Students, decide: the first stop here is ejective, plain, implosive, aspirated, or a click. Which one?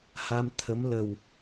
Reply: aspirated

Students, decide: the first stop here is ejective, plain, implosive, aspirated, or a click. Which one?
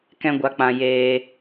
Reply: plain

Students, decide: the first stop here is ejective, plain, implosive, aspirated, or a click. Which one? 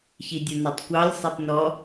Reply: plain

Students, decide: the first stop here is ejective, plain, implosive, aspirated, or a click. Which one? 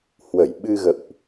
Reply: implosive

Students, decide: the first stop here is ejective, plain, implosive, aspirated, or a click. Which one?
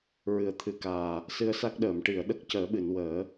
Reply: aspirated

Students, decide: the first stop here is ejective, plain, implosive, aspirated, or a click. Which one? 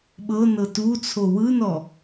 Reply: implosive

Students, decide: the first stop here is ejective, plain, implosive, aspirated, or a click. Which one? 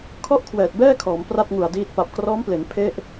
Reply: aspirated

